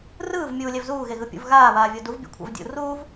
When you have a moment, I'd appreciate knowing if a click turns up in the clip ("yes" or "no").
no